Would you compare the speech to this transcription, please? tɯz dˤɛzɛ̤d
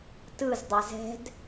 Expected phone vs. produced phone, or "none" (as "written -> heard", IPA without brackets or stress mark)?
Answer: none